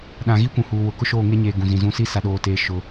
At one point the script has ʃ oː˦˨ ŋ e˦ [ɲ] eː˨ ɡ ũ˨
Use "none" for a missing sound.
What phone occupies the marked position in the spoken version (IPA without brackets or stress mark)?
ɲ